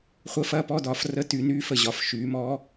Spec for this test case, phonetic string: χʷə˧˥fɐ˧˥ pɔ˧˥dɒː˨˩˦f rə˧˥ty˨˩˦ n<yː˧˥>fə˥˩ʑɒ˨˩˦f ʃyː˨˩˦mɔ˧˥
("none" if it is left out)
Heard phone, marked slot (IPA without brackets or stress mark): yː˧˥